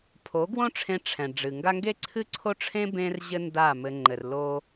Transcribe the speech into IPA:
pʰ o˨˦ ɡ w õ˦ ʈ͡ʂʰ ẽ˧ ʈ͡ʂʰ ɛ̃˨ ɖ͡ʐ ɨ˨ ŋ ɡ a˦ ŋ ɡ e˦ ǀʰ ɨ˦ ǀʰ o˦ ʈ͡ʂʰ ẽ˦ b ẽ˦ r ʑ ɘ˦ n d a˦˨ m ɘ˧ ŋ͡ǃ ɘ˨ r l o˦

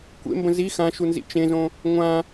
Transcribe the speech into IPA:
kʷ ḛ m b ə̃ z i x ã ʃ u n z ḭ t͡ʃ ẽ z õ | ŋʷ ã

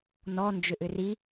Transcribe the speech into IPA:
n ɔ n d͡ʒ ʏ ʔ ʏ r i

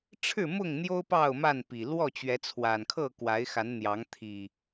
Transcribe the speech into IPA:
ʈ͡ʂʰ ɻ̩˥˨ m ʊ˥˨ ŋ n̪ j o˦ ʊ̯ p ɑ˥˨ ʊ̯ m a˥˨ n p i˨˩ l w ɔ˥˨ t͡ɕ ɥ ɛ˨˦ t͡sʰ w a˨˩ n kʰ ɤ˥˨ k w a˨˦ ɪ̯ x a˨˦ n n̪ j ɑ˨˦ ŋ t̪ʰ i˨˩

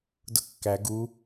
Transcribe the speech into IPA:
d ʊ kː æ ɡ u

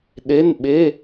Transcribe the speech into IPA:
ɗ e˧˥˧ n ɓ e˧˥˧

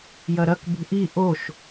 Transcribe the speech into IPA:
j ɐ ɾ ɐ k b ṳ ʔ i ʔ o ʃ

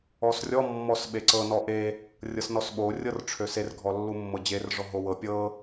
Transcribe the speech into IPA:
ɔ s rʲ ɔ mː ɔ s ɓ e ǀ ɤ n ɔ ʔ e | rʲ ɤ s n ɔ s ɓ o rʲ ɤ r ʈ͡ʂʰ ø s e r ɡʱ ɔ lː u mː ɤ d͡ʑ e r ʐ ɔ ɦ o w ɤ pʲ ɤ

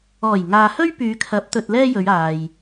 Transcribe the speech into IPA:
ɔː˨˩ j ŋ aː˨ h ɵ˥ ɥ p yː˨˧ kʰ ɐ˨˥ p̚ t̪ ɵ˧ t̚ l ɛː˥ j ɵ˨˧ ɥ aː˨ j

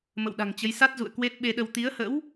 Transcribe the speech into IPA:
m ə̰˧˨ w ɗ a̤˨˩ ŋ t͡ɕ ə˨˦ j s a˦˥ t̚ z ṵ˧˨ ə̯ k w e˦˥ t̚ ɓ e˧ ɗ ə˧ w t̪ i˨˦ ə̯ h ə̰˧˥ w

